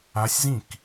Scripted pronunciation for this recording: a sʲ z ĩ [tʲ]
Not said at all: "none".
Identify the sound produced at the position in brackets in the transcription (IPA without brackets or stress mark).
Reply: k